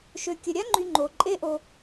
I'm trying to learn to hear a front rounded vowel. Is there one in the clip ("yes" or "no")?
yes